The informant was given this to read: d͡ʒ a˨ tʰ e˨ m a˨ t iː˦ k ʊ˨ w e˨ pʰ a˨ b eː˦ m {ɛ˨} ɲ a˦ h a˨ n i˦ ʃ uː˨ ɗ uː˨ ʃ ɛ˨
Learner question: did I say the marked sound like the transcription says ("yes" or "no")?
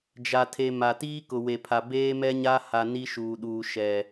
no